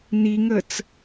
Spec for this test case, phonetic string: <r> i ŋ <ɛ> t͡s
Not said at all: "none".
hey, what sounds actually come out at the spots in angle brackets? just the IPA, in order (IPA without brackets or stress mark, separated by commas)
n, ə